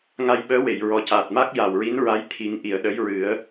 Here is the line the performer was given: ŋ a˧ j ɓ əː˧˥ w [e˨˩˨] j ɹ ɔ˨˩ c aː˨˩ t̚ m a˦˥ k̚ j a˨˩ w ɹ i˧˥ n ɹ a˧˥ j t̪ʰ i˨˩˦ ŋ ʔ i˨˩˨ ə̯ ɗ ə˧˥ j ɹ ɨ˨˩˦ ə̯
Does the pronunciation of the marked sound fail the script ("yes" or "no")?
no